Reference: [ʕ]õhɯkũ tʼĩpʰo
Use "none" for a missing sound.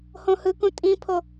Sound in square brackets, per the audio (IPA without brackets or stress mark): h